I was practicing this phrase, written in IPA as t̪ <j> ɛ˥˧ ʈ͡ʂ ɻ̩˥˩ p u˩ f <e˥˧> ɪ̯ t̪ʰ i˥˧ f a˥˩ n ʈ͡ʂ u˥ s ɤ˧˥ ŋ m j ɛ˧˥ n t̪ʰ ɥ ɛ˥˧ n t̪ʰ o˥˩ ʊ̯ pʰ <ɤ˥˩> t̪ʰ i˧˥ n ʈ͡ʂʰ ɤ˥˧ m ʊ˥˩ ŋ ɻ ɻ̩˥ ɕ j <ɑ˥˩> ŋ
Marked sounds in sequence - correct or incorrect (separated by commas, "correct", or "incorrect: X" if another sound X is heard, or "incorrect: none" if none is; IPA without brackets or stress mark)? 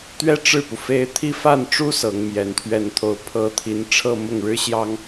incorrect: ɥ, correct, incorrect: ɤ˥, incorrect: ɑ˥